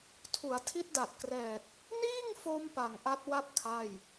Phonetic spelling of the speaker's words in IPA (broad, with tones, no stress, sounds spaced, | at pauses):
tʰ u˩˦ a̯ tʰ i˦˥ t̚ d a˨˩ t̚ k r ɛː˨˩ t̚ | n iː˥˩ ŋ f o˧ m p a˨˩ ŋ ʔ a˦˥ t̚ w a˥˩ p̚ kʰ a˥˩ j